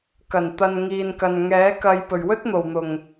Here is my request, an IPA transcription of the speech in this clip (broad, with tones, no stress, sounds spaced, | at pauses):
k ɐ˨˩ n t̪ ɐ˨ n ŋ iː˨ n k ɐ˨ n ŋ ɛː˨˥ k ɐ˨ j p ɵ˨˩ ɥ w ɵ˥ t̚ n̪ o˨˩ w n̪ ʊ˨˩ ŋ